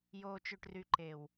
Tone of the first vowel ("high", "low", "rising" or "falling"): low